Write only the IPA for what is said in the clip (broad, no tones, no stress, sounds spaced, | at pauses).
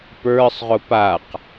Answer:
p ə˞ sˤ ʁ ʊ p a q